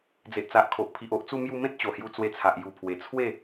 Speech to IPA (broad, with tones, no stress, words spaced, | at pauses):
d͡ze˨ʔt͡sa˨ʔkʰo˨ʔpʰi˨ʔ o˦ʔt͡su˦mju˦ mẽ˦t̚t͡ɕo˨˩hju˧ t͡swe˧t͡sʰa˨ʔ ju˨˩pʰwe˨˩t͡sʰwe˥˧